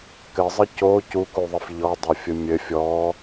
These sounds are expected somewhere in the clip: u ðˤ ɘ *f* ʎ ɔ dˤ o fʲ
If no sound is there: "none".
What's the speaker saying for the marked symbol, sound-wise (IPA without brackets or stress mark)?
f